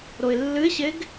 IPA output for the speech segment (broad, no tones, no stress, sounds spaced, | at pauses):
ɾ o ɪ̯ lː ɨ ɪ̯ ɕ e ɡ